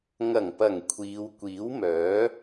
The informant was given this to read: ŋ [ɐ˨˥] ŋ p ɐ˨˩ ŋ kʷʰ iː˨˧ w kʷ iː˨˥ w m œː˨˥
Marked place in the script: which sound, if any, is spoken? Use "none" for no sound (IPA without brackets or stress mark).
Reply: ɐ˨˩